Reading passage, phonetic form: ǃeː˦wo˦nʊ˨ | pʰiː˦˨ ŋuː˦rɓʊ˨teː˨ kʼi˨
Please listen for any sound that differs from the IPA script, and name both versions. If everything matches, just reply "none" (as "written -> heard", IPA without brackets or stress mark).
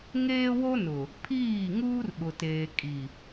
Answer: ǃ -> ŋ